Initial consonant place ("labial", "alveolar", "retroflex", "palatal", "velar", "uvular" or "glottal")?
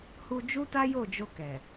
glottal